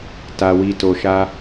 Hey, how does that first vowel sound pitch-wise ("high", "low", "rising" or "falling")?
low